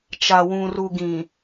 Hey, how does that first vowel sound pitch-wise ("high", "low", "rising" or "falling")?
low